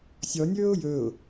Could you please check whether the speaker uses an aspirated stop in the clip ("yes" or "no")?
no